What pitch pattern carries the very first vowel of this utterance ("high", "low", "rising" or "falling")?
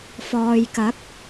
low